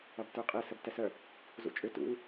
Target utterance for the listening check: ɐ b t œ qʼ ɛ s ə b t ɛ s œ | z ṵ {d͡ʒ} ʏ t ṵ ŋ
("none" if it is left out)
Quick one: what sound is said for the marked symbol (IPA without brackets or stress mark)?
t͡ʃʼ